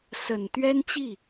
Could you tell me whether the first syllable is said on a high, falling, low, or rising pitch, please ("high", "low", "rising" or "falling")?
low